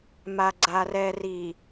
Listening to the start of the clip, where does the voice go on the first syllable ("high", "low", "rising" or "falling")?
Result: low